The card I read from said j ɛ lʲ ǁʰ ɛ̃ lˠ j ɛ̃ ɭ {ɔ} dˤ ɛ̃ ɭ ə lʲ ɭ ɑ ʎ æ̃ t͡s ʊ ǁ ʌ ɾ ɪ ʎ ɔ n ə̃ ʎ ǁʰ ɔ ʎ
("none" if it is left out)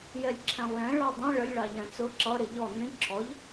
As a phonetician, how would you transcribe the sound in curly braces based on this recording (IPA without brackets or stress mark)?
ɑ